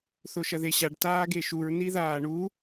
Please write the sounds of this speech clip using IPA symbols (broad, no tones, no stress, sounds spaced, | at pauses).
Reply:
θ o ʃ ɐ ð e ɕ a ɖ t aː ɡ e ʃ u ɹ n i ð aː ɳ u